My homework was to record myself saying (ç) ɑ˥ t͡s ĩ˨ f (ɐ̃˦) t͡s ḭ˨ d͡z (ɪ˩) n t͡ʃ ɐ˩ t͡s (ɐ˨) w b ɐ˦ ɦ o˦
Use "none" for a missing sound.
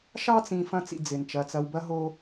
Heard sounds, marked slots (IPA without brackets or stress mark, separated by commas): ʃ, ɐ̃˦, ɪ˩, ɐ˨